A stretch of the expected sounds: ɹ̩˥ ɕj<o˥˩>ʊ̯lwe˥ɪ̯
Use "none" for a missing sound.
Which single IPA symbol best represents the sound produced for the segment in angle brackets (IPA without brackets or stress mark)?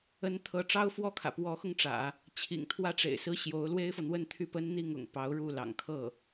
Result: o˧˥